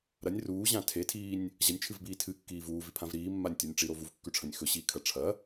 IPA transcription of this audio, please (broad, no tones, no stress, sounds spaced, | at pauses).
ɾ ɐ nʲ r uː ʑ ã tʰ e tʰ iː nʲ | ʑ ɐ nʲ t͡ʃʰ ɨ v b iː tʰ ɨ kː iː v uː v i pʰ ã v ɾ iː mː a nʲ tʲ o nʲ ʈ͡ʂ i ɾ o v u v kː ʉ ʈ͡ʂʰ ɐ̃ nʲ x ɵ ɕ iː kʰ ɐ ʈ͡ʂʰ ɐ